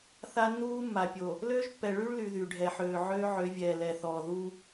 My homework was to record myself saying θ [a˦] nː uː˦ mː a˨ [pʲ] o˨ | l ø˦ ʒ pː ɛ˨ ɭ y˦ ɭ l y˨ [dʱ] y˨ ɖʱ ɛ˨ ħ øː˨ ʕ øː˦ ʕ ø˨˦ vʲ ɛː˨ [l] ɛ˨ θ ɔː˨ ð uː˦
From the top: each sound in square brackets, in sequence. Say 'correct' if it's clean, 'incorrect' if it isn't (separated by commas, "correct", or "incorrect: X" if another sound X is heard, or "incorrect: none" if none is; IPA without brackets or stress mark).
correct, correct, incorrect: ð, correct